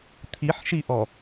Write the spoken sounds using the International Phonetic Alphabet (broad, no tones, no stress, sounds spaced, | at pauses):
t̪ʰ i ħ ʃ i ʔ ɔ